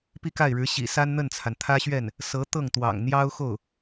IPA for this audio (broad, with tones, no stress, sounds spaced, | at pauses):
p i˥˧ k a˥˩ ɪ̯ ɻ ɻ̩˧˥ ɕ ḭ˨˩ s a˥ n n̪ ə˥˩ n t͡sʰ a˩ n t̪ʰ ä˥ ɕ ɥ ɛ˥˩ n | s ɤ˧˥ t̪ ɤ˥˩ ŋ t̪ w ɑ̰˨˩ ŋ n̪ j ɑ˥ ʊ̯ x o˥˩ ʊ̯